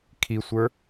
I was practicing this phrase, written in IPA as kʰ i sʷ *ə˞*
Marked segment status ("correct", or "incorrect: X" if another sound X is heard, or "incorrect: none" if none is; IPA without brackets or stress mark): correct